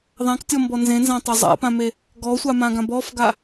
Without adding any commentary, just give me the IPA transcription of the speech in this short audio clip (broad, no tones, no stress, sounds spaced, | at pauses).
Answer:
ðˤ ã k tʲ ɔ m b ɔ n z ẽ n z ã tˤ a zˤ a̰ p ã m e | ɡ ɔ sʷ a m ã ɡ ã b ɔ f ɡ a